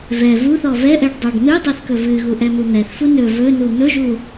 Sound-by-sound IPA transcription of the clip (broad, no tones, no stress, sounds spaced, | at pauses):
v ɛ v u θ ɔ v ɛ ʔ ɛ ɖ dˤ a ɖ n̪ ɨ dˤ ɛ θ k ɵ v ɨ ɣ u ʔ ɛ m u n̪ ɛ θ f u n ɵ v ɵ n u n̪ ɵ ʒ u